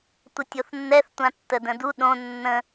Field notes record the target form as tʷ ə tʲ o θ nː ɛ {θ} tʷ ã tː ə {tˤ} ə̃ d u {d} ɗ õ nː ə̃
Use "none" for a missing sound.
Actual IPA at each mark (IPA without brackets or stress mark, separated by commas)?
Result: θ, d, none